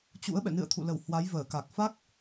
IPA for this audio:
t͡ɕ ṵ˧˥ ə̯ ɓ ɛ̰˧˨ n ɨ̰˧˨ ə̯ t̪ʰ ṵ˧˨ l ə˧˩ w h w a˨˦ j v əː˧˩ k a˨˩ k̚ f a˦˥ k̚

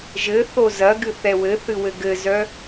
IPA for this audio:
ʒ ɘ θ o z ɐ ɡ ɨ θ ɛ w ɘ θ ɨ w ɘ ɡ ɘ z œ

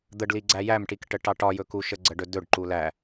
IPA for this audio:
d̪ ə ɖ l i ɡ͡ǀ æ j æ m ʈ i k ʈ ə ʈ ɑ ʈ ɒ j ɵ k u ʃ ə ɡ͡ǀ ə ɖ ɵ d ɵ ɖ ǃ u l æ

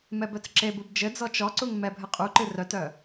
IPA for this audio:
m ɛ b œ t͡s ǁ e b u b d͡ʒ ɘ d͡z ɔ t͡ʃ ɔ ǀ u ŋ m ɛ bʱ ɘ qʼ u ǃ ɨ r œ t œ

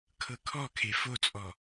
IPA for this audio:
kʰ ɤ kʰ ɔ kʰ e f o t͡sʼ ɔ

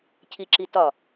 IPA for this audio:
cʰ i ǁ i t ɒ

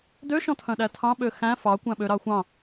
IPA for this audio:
d ø ʃ ɔ̃ tʰ œ̃ ɗ æ tʰ ɑ̃ ɓ ø x æ̃ f ɑ kʷ æ̃ ɓ ø ɾ ɑ xʷ ɑ̃

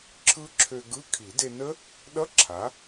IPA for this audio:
ǁʰ ɯ˦˥ ǁʰ ø˧ ɡ ɯ˧˥˧ kʰ i˨˩˦ d e˧ n ə˦˥ | ɗ ʌ˧˥˧ ǁʰ a˩˥

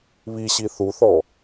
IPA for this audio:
β i ɕ i θ u θ ɔ

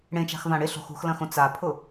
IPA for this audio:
ɽ ẽ t͡ʃ a̤ x v ã ɽ ɪ ɬ o̤ x ṳ x l ɐ̃ x õ t͡s a pʰ ʊ

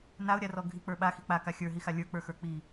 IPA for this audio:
n a ʊ̯ ɾʲ a r ɔ ɡʱ i k͡p ə˞ ɓ a x i k͡p a k a xʲ ə˞ ɦ i x a lʲ ə˞ k͡p ə˞ x ə˞ k͡p i

